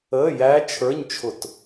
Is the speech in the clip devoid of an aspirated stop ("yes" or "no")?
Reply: no